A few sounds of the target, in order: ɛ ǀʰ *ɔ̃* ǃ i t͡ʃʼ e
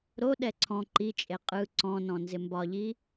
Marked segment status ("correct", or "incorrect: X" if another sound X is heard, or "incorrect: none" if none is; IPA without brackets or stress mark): correct